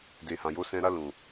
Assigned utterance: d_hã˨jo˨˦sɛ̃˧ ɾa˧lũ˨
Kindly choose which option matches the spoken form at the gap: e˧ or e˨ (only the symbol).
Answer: e˨